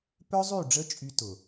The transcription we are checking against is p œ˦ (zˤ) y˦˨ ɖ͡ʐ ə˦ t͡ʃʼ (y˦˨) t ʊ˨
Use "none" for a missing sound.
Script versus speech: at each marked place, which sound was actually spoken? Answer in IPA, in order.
zˤ, y˧

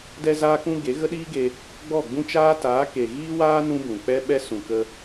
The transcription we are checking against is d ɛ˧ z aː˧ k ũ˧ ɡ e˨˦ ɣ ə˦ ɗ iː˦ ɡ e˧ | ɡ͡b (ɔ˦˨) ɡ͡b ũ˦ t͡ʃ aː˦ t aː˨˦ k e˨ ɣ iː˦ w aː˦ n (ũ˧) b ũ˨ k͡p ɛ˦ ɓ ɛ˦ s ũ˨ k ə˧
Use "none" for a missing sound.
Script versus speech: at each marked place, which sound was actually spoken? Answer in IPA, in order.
ɔ˦˨, ũ˦

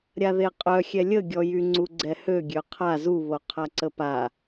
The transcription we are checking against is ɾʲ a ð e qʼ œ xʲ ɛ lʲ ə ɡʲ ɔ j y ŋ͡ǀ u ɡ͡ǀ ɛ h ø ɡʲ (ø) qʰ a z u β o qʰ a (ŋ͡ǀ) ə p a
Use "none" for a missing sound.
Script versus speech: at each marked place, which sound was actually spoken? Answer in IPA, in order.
ø, ǀ

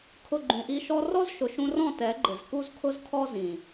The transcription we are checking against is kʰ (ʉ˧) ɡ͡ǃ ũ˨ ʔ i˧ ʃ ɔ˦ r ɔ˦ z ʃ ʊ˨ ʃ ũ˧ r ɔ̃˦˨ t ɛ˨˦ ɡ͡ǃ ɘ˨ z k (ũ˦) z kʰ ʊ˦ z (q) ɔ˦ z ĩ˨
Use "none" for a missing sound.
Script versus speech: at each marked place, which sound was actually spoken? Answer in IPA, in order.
ʊ˧, u˦, kʰ

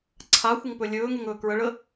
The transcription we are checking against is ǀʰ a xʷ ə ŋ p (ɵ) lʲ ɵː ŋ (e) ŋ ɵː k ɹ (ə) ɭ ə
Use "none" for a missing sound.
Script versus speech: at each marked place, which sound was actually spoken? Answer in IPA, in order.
ɵ, e, ə

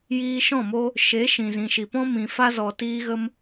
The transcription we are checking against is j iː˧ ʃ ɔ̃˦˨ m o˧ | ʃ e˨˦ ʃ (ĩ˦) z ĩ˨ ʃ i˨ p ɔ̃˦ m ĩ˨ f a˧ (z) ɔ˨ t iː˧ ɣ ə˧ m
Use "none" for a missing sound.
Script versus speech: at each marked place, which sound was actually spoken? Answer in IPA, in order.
ĩ˨, z

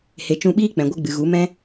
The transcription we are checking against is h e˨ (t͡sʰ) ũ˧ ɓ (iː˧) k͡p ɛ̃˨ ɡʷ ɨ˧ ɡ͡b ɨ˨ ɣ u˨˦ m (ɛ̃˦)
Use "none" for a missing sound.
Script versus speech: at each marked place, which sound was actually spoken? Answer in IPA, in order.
t͡ʃ, iː˦, ɛ̃˦

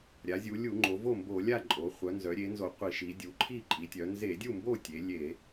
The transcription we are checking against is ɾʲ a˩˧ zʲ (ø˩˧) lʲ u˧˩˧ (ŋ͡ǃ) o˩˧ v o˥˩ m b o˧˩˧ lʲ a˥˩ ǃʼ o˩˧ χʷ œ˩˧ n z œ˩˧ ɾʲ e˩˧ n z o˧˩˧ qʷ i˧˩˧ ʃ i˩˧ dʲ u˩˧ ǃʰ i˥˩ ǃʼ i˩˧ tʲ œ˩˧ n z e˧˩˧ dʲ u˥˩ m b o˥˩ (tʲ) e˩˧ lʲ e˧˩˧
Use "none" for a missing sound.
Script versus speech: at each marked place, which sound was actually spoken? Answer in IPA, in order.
u˩˧, ŋ͡ǃ, tʲ

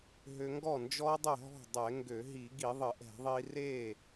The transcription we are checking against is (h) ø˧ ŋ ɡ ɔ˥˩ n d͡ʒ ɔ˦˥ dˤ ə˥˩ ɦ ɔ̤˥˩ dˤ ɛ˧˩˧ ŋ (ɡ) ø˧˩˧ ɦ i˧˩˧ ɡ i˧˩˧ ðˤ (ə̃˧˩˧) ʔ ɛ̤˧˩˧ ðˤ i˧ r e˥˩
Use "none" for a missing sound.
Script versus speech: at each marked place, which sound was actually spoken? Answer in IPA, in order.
ɦ, ɡ, ə˧˩˧

